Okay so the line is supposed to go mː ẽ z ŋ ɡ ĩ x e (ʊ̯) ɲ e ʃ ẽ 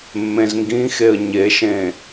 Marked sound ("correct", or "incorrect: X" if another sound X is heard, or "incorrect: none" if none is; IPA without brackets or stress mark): incorrect: ə̯